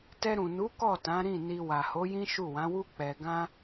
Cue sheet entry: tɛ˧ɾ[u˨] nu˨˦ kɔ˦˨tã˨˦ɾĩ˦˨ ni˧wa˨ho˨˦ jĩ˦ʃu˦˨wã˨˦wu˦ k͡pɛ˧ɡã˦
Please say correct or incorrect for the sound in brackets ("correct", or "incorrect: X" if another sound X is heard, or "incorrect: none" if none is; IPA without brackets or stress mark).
incorrect: ũ˨